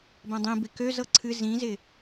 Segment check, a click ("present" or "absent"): present